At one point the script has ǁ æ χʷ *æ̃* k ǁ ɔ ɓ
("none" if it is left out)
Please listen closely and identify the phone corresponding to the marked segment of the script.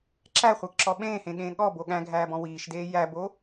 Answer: æ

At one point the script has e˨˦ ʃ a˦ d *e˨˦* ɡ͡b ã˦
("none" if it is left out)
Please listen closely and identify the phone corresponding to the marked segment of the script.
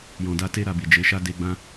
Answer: e˧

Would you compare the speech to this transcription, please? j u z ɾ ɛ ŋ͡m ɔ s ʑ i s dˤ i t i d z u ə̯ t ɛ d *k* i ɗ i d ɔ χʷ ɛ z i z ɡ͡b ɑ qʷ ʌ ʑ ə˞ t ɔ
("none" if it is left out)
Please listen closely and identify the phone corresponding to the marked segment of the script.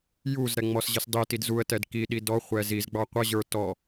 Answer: k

